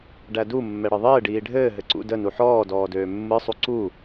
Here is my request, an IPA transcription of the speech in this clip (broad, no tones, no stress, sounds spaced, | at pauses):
ɖ æ d u mː ɛ ɽ ɯ ðˤ ɘː ɖ iː ɖʱ ɘː ɦ ɘ ǀ ṵ d ə n u ħ ɔː d ɔː d øː mː ɯ sˤ u ǀ u